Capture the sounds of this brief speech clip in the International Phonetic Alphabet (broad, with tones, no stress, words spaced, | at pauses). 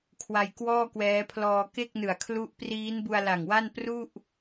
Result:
kʰwa˧jkwɔː˥˩kwɛː˦˥pʰlɔː˧ ke˥˩k̚nɯ˨˩a̯kʰlu˦˥ʔpriː˦˥n bu˧a̯la˨˩ŋwa˥˩npru˥˩ʔ